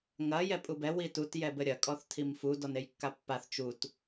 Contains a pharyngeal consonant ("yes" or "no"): no